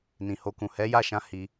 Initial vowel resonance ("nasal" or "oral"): nasal